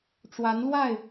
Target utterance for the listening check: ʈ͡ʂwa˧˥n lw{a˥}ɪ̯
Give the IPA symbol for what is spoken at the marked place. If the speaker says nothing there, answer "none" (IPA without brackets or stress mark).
a˥˩